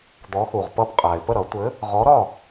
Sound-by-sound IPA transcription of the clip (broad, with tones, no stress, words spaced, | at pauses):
d̪ɔ˨˥xu˨˩ʁpʌ˥˩bqʼa˨˩ɪ̯ pə˥˩ɾʌ˨˩˦ tʷɘ˨˥ | ʁɔ˨˥ɾɒ˥˩